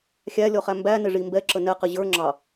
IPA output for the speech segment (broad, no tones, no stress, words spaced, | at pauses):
xʲælʲɔχæ mbænɪʐi mbɛǁə nɛqɪ ʑə˞ ŋ͡ǁɑ